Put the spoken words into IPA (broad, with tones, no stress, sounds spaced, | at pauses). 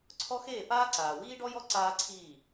ǀʰ ɔ˦ x eː˦˨ p aː˦ ǀ aː˨ w iː˦ ɖ ɔ˦ j ɔ˦ ǀ aː˦ ǀʰ iː˦˨